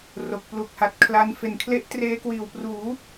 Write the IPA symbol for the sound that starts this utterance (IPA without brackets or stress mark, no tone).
r